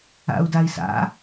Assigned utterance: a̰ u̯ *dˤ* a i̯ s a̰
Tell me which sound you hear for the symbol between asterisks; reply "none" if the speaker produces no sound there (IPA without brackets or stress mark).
d